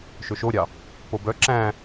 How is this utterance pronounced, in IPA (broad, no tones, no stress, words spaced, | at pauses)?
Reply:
ʃɵʃoɾʲɑ | pobœ ǁæ̃